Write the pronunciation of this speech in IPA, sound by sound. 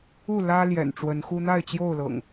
u˥˨lä˦ ljɛ̰˨˩nʈ͡ʂwə˨˦nxu˦ n̪a˥˨ɪ̯t͡ɕjo˥˨ʊ̯lɤ̰˨˩ŋ

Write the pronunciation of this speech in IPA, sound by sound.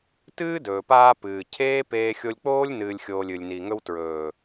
tɨː˦dɵː˨paː˧ pɨː˨ cʰeː˦peː˧ xʲo˧lʲk͡poː˦lʲnɨː˨lʲxʲoː˨lʲ ɨ˨lʲni˨ ŋɵ˧wtɹɵː˨

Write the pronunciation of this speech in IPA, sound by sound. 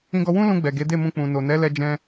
ĩ˧ɡɔ˧wũ˦ lũ˧ɡ͡bɛ˨ ɡe˨˦de˦˨mũ˧ k͡pũ˨no˨nɛ˨˦ lɛ˦d͡ʒɛ̃˦

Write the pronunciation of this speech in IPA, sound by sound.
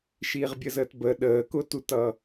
ʃiʁbʲəzəːtbə ɗəːkʊtutʌ

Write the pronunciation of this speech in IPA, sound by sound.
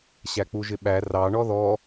ɕæk͡puʒɪɓæ rɑ ɳɔðɔ

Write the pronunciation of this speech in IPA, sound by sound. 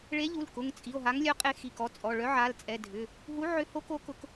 ɭe˨˥ʎu˩˧˩l kʊ˩˧˩ŋt͡sʼi˩˧˩o̯ ɦa˨˥ŋlʲœ˨˥qʼe˨˥ xi˩˧˩kɔ˨˥t͡sʼɔ˩˧˩ ɭœ˨˥ʕa˩˧˩lt͡sʼɛ˩˧˩ dʱʏ˩˧˩ | ɦu˨˥ʕʏ˨˥ho˨˥ko˨˥ kʊ˨˥k

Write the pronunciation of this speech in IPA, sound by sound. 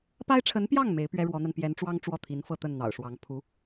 pa˥ɪ̯ʈ͡ʂʰə˧˥npjɑ˥˩ŋ me˧˥ɪ̯pɥɛ˥ ɻwɔ˧˥n̪a˧n pjɛ˧˥nʈ͡ʂwɑ˥ŋ ʈ͡ʂwɔ˥˩t̪ʰi˧˥nfɤ˥˧t̪ə˥˩n n̪ɑ̰˨˩ʊ̯ʂwɑ˧˥ŋ pʰu˧˥

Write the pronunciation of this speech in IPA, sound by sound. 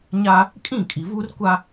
ɲaː˦ | kʼĩ˦˨ kʼi˨vuː˦rkʷa˦

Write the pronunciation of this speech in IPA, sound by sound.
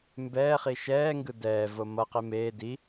mbɛː χiʃɛːŋɡɯ dɛːvo mʌqe meː di

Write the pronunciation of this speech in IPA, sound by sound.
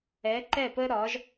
ɛ˩˥ǃɛ˥˩pə˥ɾɒ˩˥ʒ

